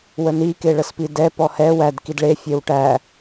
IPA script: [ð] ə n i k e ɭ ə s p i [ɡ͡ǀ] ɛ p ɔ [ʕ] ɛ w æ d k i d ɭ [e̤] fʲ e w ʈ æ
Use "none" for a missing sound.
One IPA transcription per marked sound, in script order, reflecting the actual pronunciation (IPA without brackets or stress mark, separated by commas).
w, d, h, e